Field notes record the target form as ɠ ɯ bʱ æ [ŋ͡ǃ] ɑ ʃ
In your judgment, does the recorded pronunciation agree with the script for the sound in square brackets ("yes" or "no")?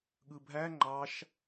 yes